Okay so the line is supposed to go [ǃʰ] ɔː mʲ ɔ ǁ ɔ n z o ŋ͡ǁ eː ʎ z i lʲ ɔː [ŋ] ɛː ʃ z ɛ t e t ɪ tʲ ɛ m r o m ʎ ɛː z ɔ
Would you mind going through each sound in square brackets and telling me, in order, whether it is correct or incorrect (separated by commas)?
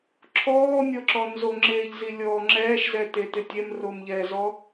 incorrect, incorrect